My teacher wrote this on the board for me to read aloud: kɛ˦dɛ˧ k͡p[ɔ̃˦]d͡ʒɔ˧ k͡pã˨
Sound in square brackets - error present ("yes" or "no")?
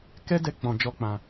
yes